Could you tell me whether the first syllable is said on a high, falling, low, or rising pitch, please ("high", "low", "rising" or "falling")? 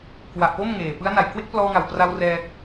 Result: low